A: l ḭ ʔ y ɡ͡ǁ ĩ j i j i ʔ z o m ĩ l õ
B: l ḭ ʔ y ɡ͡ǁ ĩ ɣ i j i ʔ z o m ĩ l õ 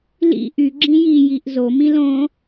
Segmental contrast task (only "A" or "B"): A